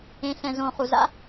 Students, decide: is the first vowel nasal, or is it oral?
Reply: nasal